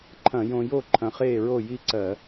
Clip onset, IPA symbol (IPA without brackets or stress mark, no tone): ǃʰ